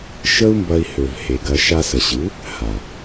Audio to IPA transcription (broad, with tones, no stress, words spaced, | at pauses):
ʃə˦u̯mbɐ˧i̯hø˨v he˨ɡɐ˧ ʃa˧sə˨ɕɨ˨˦ | ha˨